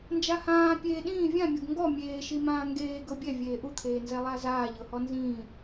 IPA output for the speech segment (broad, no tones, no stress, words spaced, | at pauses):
nd͡ʒahãː pʲeːɗĩː vʲãmʲɤɡ ŋɡɔ mʲeːʃimãː ŋɡeː ɡɤbʲɛ vʲeːʔut̪ʰeːnzɛ lˠazaːʎɤhɔ nzĩː